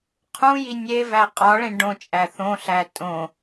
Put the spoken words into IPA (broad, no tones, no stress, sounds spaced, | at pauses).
qʰ ũ j i nʲ e v æ qʼ ɒ ɭ ẽ ɖ õ t͡ʃʼ æ θ õ ɬ æ tʼ õ